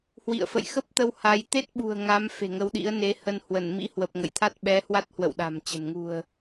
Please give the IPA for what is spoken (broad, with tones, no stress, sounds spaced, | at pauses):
h w ḭ˧˨ ə̯ f ə̰˧˨ j x ə˦˥ p̚ t̪ ə˧ w h a˨˦ j t̪ e˦˥ t̚ ɓ ṳ˨˩ ə̯ ŋ a˨˦ m f e̤˨˩ ŋ ə˨˦ w ɗ ḭ˧˥ ə̯ n e˨˦ h ə˧ n h w ə˧˩ n m ḭ˧˥ h w ə˨˩ p̚ ŋ ə̰˧˨ j t̪ʰ a˦˥ t̚ ɓ ɛ˨˦ h w a˦˥ t̚ h w ə̰˧˨ w ɗ a̤˨˩ m t͡ɕ ə̤˨˩ n ŋ ṳ˨˩ ə̯